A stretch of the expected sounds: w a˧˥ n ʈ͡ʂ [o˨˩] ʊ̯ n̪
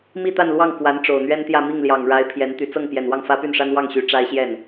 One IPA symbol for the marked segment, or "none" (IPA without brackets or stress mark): o˨˩